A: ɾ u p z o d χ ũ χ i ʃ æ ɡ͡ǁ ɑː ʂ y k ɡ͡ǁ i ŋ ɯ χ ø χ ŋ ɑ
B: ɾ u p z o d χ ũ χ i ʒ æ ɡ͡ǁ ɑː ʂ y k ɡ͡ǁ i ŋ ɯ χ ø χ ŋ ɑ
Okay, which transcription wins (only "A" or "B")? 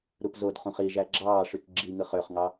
B